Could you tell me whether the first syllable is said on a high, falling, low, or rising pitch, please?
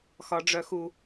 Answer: high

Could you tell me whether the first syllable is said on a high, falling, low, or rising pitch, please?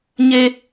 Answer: low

